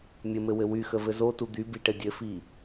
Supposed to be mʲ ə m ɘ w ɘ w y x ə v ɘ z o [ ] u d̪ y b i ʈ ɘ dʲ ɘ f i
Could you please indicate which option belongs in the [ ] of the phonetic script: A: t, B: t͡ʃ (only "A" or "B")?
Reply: A